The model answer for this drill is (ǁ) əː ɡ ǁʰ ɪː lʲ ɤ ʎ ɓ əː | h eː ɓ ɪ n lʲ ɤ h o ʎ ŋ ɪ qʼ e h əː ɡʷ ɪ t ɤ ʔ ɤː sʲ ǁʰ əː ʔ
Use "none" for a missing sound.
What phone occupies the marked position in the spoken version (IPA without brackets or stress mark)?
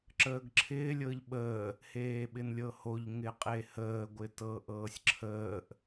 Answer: ǁ